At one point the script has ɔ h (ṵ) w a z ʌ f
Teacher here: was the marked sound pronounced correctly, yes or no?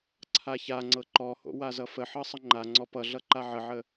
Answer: no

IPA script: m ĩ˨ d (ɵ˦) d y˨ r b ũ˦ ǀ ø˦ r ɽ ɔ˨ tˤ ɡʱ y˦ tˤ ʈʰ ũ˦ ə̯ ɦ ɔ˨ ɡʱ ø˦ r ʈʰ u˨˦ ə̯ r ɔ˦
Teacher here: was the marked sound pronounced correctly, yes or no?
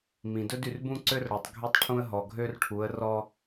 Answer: yes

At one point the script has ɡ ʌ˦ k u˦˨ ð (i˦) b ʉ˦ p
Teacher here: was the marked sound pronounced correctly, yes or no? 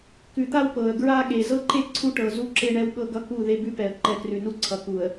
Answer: no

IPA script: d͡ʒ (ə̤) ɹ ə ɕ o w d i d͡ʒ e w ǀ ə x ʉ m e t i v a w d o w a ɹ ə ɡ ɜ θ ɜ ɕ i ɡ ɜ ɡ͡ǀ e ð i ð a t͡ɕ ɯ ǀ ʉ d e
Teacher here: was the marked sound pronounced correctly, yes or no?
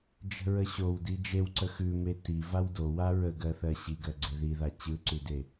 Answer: yes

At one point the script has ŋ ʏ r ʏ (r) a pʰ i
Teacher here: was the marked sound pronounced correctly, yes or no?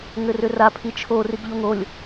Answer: yes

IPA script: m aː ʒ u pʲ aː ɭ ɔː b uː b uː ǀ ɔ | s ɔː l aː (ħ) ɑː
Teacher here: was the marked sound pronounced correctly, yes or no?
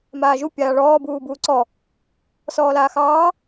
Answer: no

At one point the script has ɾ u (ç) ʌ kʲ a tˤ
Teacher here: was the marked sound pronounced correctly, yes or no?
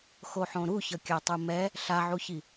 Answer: yes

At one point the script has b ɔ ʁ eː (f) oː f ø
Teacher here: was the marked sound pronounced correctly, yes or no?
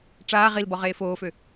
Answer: yes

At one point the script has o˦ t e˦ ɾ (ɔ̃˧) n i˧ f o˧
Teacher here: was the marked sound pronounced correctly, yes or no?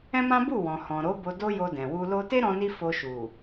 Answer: yes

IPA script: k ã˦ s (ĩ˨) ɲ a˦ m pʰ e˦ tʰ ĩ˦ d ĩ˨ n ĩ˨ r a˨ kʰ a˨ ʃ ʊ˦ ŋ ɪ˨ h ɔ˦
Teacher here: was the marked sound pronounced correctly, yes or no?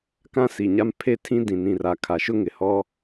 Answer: no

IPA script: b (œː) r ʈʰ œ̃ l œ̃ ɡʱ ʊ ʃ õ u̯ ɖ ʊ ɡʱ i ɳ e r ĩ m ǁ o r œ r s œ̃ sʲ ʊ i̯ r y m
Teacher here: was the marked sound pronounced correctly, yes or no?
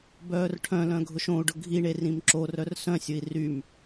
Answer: yes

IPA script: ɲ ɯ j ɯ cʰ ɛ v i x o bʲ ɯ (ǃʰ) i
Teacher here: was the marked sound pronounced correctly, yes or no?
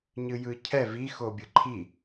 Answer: yes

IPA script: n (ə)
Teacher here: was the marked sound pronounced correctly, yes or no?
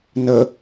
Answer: yes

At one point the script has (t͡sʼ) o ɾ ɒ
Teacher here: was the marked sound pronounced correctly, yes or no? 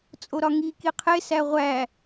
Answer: yes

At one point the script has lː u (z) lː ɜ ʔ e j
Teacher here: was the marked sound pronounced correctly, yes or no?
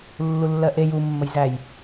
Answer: no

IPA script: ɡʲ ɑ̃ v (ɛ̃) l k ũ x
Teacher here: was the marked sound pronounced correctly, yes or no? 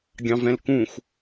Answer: yes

